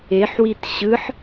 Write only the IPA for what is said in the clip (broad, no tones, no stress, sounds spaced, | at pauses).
e ħ w i t ɕ ɯ ħ